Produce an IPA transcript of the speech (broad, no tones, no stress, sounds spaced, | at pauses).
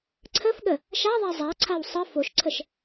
ǀʰ ə f ɠ ə | ʃ a ðˤ a zˤ a ǀʰ a w sˤ ə f o ʃ ǀʰ ə ʃ